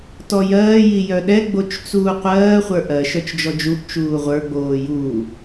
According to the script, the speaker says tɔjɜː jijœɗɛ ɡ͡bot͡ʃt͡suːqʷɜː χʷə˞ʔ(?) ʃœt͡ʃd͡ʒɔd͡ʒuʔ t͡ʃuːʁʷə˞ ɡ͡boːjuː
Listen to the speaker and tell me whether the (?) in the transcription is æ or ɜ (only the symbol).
ɜ